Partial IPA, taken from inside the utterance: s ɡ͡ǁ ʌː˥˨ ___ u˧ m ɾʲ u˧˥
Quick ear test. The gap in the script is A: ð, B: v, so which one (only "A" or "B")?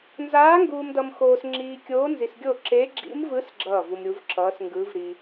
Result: B